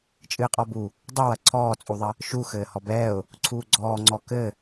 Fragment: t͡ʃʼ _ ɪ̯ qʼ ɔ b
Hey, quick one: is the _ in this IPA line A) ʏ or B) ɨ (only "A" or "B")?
B